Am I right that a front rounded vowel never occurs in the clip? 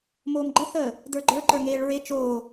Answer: yes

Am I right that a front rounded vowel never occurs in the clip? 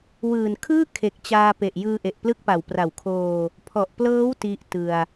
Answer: yes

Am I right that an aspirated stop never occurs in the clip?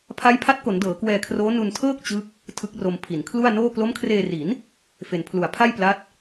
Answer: no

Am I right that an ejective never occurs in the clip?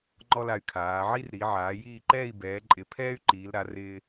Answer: no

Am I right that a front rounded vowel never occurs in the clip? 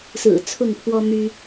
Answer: no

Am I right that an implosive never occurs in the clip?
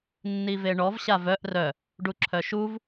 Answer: yes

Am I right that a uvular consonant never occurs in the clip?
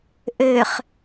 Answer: no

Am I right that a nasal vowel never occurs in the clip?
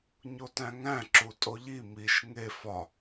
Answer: no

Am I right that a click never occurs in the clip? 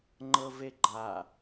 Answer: no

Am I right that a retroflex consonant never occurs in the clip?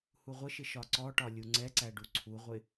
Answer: no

